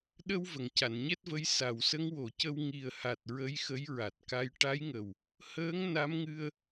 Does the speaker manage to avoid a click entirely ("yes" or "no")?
yes